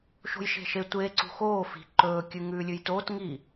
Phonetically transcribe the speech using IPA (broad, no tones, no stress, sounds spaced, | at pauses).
ʃ o̤ j ʃ e̤ ʃ e tʷ eː ǀ ṳ x oː f i̤ ǃ ɵː kʲ ʉ ŋ ʉː lʲ ʉ j t oː t ŋ i